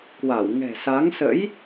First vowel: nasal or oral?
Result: oral